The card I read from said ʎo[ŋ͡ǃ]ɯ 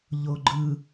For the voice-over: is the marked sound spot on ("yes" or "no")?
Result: no